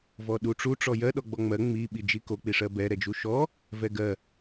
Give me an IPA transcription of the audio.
vɔɗuʈ͡ʂu ʈ͡ʂɔjɜ ɗɔɡ͡bɔŋ͡mɜ ŋ͡mi ɓid͡ʒiko k͡piʂɜbɛ ɾɛd͡ʒuʃɔ | vɛɡɜ

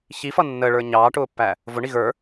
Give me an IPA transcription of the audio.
çifʌ nːəːɭə˞ ɲɑːʈʊːpːæ | vʊɳi ɣə˞

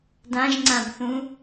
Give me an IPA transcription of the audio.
dãʒŋ͡ǀãbθũ

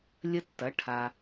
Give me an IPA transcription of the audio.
lʲə˧tːɐ˩˧ ʈʰa˩

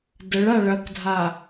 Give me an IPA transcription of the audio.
dəɭa ɭɐkdʱa

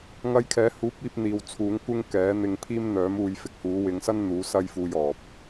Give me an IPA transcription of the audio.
ŋɐ˧jkʰɛː˨˥huː˨˥p̚iː˧p̚ n̪iː˨wt͡sʰuː˨˥ŋ kʷɪ˥ŋkɛː˨˥n̪ɪ˧ŋ pʰiː˥m n̪œː˨˥m uː˧j fɪ˧k̚huː˨˥ wɪ˨˧ŋsɐ˥n n̪uː˨˥sɐ˥jfuː˧jɔː˨p̚

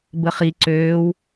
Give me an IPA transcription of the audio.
bəχi ǀøːw

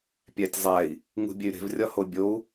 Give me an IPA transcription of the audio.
pʲætʲzˤæi̯ | ŋṳbʲey̯ɾe̤v rʲɒhobʲou̯

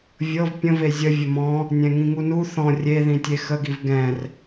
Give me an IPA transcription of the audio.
vʲɤv pʲə̃ve zʲə vʲəmɔ̃ | nʲɛ̃ŋĩŋunu θɔ̃ rʲe ðĩtʲexəɡiv ɡɛ̃r

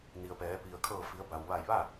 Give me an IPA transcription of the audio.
ni˩ə̯pɛː˩˧ pi˩ə̯kʰɤː˧˩fi˩˧ə̯ ba˩wʋa˧˩jʋa˥˨

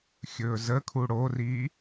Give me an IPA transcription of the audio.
xʲɵːzəkʰu ɽoriː

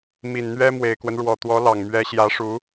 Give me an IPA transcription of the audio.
mi˨˩nn̪ɥɛ˥ mwe˨˩ɪ̯kwə˦n ɻwɔ˨˩t̪wɔ˧˥lɑ˨˩ŋ mɥɛ˧˥ ɕjä˧˥ʂu˧˥

